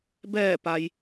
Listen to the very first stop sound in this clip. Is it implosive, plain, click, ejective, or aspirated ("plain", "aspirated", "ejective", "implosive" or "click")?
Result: plain